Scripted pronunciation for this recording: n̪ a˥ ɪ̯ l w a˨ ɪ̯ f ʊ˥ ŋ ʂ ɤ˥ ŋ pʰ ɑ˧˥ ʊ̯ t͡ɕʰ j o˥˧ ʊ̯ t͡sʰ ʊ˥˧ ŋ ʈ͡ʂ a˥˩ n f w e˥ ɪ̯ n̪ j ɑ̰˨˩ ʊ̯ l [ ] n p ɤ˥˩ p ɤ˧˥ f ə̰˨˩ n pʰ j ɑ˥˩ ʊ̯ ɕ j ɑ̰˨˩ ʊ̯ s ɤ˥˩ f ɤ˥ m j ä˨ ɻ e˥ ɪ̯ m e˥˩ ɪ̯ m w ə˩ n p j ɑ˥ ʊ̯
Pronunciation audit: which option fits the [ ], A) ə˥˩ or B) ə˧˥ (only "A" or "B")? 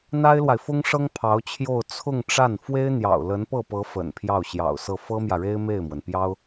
B